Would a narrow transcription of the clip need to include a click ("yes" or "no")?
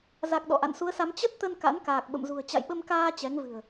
no